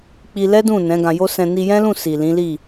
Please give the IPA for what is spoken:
k͡pi˧lɛ˦dũ˦˨ nɛ̃˨˦ɡã˧jo˦ sɛ̃˧ ni˧jɛ̃˦lũ˦˨ si˨lĩ˨˦ li˦˨

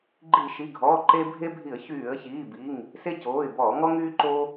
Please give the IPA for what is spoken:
ɡ͡ǃi˧˩˧ʃi˩˧˩ɡʱɔː˩˧˩ ǃe˦ bʱe˦bʱi˧˩˧ə̯ çyː˧˩˧ə̯çiː˩˧˩bi˩˧˩ŋ | se˦coː˩˧˩ɪ̯bɔː˧˩˧ ŋɔ˦ŋyː˦ǃo˦

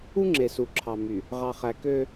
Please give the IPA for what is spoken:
u˦ ŋ͡ǁe˨su˨ǁʰɑ˨ my˨ | ʁɑ˨χæ˨kø˦

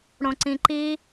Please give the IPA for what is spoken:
ɽõǀĩǃi

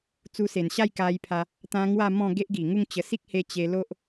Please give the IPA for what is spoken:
t͡su˧se˨˩nɕa˥˧j ka˧jpʰa˧ | t̪ã˧ ŋwa˥˧mɔ̃˥˧ ɡe˦ʔɡi˨˩ŋu˥˧ŋt͡ɕə˧ si˦k̚he˧ t͡ɕe˧lo˦ʔ

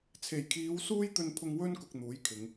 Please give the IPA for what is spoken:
t͡sʰe˨˩jkʰiː˨˧w suː˥jt̪ɵ˧npʰʊ˧ŋ wɵ˥nkʊ˨k̚n̪uː˨˥jkʰɪ˨˧ŋ

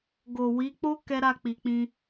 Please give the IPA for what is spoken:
ɡo˨wi˨˦k͡po˦ kɛ˦ɾa˦˨ k͡pi˨k͡pĩ˧

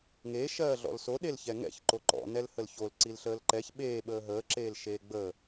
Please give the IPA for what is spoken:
ŋe ʃɜːɮɔ̰lso ɗelçɛŋɛ̰ç ǃoǃɔ̰ nɛlhəlçol ǀilɬəːlǃɛç ɓeː ɓəːɦəː ǁeːlʃeːɡ͡bəː

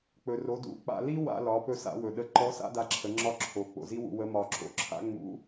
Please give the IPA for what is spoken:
k͡pɵ˩ ro˩˧dṵ˩˧k͡pa̰˧ li˥ wa̰˧lɒ˩˧ pɵ˧sa̰˩˧wɵ˩ɗə˧ ǃɔ˧˥sa̰˥ da˧ǁʰə˩˧ŋ͡ǁɒ˧˥ ǁʰo˩˧k͡po̰˩zi˥wṵ˧ wə˧˥mɒ˧ ǁo̰˩˧ǁʰa̰˥ ŋ͡mṵ˧˥

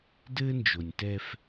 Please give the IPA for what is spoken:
dɘː˦nd͡ʒo˨nʲtɛ˦f

